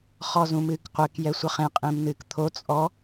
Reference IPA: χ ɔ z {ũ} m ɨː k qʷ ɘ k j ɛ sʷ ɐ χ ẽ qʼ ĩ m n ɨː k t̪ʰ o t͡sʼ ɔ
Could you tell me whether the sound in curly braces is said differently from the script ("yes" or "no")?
no